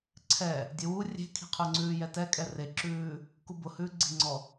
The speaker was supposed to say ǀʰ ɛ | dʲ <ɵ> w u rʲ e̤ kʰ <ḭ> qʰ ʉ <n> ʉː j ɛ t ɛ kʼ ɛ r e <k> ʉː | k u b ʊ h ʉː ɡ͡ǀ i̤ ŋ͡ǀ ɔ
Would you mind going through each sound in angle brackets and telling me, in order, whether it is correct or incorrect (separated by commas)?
incorrect, incorrect, incorrect, incorrect